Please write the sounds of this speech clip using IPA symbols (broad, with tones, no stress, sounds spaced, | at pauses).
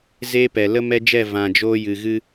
z eː˦ p ɛ˨ l ə˦ m ɛ˦ d͡ʒ ɛ˦˨ v ã˨ d͡ʒ oː˧ j ɨ˨ ɣ ɨ˧